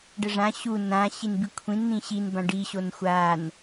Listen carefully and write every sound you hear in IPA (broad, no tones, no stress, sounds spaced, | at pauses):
ɖ ə ʐ ã ɕ u n ã ɕ i n b i kʷʰ ĩ n n̪ ĩ ɕ i n b ã ɖ i ɕ o n xʷ a n